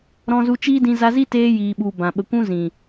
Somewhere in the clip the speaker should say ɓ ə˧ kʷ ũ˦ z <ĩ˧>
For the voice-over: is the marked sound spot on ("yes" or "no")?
no